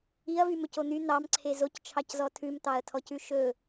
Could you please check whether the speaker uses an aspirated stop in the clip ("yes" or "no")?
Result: yes